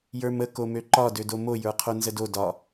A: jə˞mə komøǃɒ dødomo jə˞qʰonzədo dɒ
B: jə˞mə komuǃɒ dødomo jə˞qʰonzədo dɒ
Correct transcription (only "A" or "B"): A